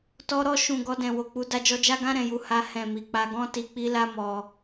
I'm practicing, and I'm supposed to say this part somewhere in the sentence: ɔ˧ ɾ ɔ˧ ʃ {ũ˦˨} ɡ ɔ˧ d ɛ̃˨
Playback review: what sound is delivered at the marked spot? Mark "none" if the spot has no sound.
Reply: ũ˨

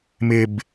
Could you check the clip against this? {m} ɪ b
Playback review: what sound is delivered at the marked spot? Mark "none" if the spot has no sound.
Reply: m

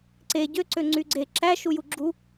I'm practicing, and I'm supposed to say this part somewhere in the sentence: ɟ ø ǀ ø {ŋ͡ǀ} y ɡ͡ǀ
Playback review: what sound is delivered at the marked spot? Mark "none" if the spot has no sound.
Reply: ŋ͡ǀ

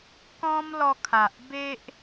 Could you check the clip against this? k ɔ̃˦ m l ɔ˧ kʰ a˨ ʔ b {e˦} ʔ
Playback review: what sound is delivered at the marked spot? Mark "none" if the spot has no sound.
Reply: e˦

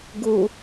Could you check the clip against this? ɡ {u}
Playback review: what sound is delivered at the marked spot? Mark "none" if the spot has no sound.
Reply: u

